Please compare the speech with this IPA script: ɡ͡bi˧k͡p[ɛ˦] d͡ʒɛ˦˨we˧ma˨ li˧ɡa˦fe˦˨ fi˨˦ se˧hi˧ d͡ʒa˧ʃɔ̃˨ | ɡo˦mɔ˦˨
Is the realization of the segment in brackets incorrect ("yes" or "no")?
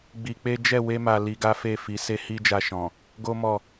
yes